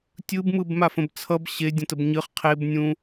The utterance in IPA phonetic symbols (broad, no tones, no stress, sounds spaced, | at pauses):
tʲ ɯ b m ɯ b m a f ə̃ b t͡sʰ ʌ b ɕ e dʲ ə̃ t ə b ɲ ɨ χ qʰ e b nʲ ũ